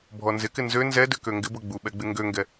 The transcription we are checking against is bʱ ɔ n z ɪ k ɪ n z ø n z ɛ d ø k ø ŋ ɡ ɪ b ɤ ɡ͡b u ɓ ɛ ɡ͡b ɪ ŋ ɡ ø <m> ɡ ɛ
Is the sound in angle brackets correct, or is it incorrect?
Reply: incorrect